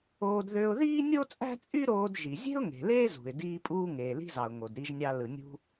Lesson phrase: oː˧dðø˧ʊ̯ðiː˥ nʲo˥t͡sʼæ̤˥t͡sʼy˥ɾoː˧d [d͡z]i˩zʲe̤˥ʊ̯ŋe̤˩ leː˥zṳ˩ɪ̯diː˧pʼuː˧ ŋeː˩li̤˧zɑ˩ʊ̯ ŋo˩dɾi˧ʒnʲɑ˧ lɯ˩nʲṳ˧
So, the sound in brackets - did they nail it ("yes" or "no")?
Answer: no